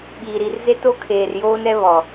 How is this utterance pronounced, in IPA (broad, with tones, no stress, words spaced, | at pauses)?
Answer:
ɓiː˨ ɾi˨rze˦to˦ kʰeː˨rjoː˦nɛ˦βɔ˨